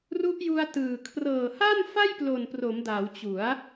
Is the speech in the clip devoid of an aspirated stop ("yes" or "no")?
no